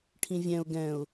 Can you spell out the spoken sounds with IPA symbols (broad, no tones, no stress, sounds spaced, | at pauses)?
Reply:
ʈʰ ĩ vʲ ɛ̃ ʊ̯ ɡ ɛ̃ ʊ̯